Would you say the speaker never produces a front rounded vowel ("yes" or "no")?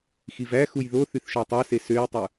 no